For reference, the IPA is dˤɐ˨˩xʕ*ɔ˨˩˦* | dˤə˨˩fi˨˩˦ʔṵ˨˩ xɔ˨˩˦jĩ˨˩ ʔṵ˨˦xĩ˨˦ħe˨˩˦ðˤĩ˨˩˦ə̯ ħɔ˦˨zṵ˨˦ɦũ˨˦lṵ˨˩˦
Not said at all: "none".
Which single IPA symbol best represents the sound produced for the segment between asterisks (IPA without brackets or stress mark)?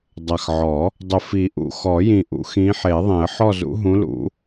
ɔ˨˩˦